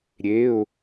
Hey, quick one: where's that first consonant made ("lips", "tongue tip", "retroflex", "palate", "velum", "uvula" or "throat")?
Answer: tongue tip